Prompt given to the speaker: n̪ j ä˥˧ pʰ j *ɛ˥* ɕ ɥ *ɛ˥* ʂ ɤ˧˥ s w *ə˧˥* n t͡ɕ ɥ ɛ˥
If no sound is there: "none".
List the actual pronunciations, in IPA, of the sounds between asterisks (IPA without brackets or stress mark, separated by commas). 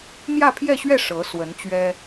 ɛ˥˧, ɛ˥˩, ə˧˥